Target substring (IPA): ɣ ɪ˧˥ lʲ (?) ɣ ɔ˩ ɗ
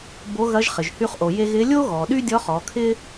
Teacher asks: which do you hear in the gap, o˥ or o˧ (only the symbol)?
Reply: o˥